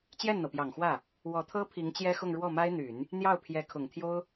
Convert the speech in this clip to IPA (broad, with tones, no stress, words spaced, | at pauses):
t͡ɕjɛ˥˩nn̪ɤ˩pjɑ˨˩ŋxwä˥˩ | wɔ˧˥t̪ʰɤ˥pʰi˧˥ŋ t͡ɕjɛ˥xʊ˥˧ŋ ɻwɔ˥˩ma˥ɪ̯n̪y˨˩˦n | n̪jɑ˥˩ʊ̯pʰjɛ˧˥kʰʊ˨˩ŋt̪ʰjo˥ʊ̯